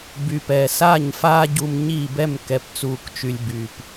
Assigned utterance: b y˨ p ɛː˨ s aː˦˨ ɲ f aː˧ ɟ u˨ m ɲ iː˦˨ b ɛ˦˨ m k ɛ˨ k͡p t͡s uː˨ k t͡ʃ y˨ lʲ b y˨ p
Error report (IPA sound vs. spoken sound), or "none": k͡p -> p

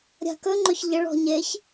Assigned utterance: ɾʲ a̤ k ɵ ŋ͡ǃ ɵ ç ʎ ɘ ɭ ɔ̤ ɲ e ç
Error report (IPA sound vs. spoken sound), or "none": none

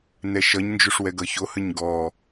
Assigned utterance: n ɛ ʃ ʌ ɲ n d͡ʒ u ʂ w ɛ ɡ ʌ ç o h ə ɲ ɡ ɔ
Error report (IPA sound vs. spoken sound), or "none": none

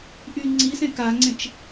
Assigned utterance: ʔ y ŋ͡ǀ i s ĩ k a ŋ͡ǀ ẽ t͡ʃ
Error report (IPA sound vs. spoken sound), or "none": ĩ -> ẽ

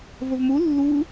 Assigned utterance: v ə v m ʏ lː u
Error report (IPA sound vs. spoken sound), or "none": ʏ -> u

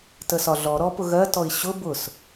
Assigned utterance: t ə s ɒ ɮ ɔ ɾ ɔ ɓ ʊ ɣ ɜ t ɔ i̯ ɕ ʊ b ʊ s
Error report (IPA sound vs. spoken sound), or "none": ɓ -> p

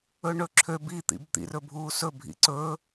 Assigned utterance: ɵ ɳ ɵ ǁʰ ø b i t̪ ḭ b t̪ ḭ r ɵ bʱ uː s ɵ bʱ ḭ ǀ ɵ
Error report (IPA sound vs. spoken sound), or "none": none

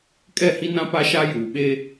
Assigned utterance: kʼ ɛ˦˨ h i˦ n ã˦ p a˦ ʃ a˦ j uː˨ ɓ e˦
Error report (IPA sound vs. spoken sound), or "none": none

